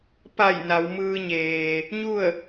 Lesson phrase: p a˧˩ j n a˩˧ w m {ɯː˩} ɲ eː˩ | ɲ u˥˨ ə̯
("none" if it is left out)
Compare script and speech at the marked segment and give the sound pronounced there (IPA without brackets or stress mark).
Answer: ɯː˧